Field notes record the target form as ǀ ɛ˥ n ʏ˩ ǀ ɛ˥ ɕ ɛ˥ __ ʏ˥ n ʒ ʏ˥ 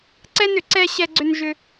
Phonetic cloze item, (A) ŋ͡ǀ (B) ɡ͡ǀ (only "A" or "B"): B